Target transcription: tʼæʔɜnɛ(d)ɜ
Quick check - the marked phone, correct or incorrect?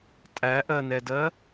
correct